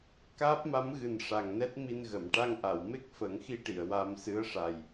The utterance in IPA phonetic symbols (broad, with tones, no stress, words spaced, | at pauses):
kaː˦˥p̚ma˧˥mɣɨ˨˩n ʂa˨˩ŋnɛ˦˥t̚mi˧nɣə˨˩˨m ʈa˧ŋʔa˨˩˨wme˦˥k̚ fə˨˩˦ŋxi˧ʈi˨˩˨ə̯ wa˧m sɨ˧˥ə̯ʂa˨˩j